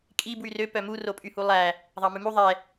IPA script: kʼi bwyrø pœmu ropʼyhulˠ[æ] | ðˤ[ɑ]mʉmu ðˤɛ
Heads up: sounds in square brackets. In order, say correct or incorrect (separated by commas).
correct, correct